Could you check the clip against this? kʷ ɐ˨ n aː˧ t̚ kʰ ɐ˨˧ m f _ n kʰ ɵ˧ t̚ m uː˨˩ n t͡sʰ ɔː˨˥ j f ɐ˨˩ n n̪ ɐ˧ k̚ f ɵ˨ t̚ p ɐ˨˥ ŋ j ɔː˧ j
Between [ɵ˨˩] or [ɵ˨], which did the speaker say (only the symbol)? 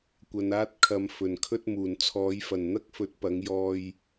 ɵ˨˩